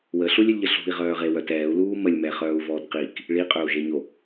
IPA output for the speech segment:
wəɬulʲølʲʎə ɬṳi̯ʁœːʁewœt ɛːu̯luː məlʲmɛχœːu̯vɔːt qik | ɭiqʼøu̯ʒeɲo

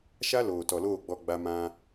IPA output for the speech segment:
ʃa˦loː˨tɔ˨loː˦˨ ɡ͡bɔ˦ɡ͡ba˦ mã˦

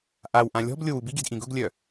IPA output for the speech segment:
ʔawʔã lʲɔ̤blʲow ubiɡi̤d ʔĩɡʊɡlʲœ

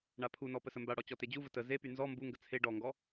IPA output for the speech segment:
ɳapʰunɔ pəsəmbaɽɔ t͡ɕɔted͡ʑuvə tə zepy nzɔ mbuŋɡə t͡sʰe ɖɔŋɡɔ

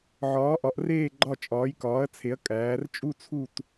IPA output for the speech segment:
ʕɒː˨˥ʔɒ˨˥ʔreː˥˧ ɡ͡ǃɒ˥˧ t͡ʃʼɒː˨˥jkɒː˨˥ɐ̯t͡sʰe˨˥ɐ̯ kʼæː˨˥r t͡ʃʼu˥˧ t͡sʰu˥˧t

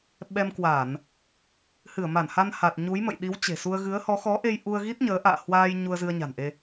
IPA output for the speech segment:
ɓɛ˧mkwa˧˩˨n | hɨ˧˩ə̯ma˧˩nha˧n ha˨˩t̚ɲu˨˦jmə̰˧˨j ɗi˨˦wt͡ɕe̤˨˩su˧ə̯ ɣɨ˨˦ə̯hɔ˨˦ xɔ˨˦ʔe˧j ʔu˧ə̯ɣi˦˥t̚ɲəː˨˦ ʔa̰ː˧˨hwaː˧j ɲu˧ə̯zɨ˧ə̯ɲa̤˨˩nʔe˧

